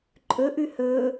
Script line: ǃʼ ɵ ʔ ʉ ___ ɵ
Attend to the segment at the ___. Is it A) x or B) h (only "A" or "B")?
B